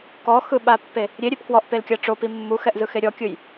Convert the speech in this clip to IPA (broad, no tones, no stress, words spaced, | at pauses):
kɔxɯɓapːe | ɾʲeɾʲep kwɔʔpelkʲa ʈ͡ʂopi mːuxɛʔzɯxe ɾʲɔkʲɯj